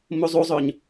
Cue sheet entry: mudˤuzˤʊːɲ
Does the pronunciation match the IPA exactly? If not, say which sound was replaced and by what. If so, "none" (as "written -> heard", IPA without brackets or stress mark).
dˤ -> zˤ